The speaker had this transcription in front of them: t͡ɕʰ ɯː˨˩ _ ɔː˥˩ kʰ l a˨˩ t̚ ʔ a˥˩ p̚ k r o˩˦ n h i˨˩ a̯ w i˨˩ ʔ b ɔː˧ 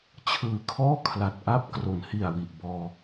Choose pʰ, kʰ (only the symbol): kʰ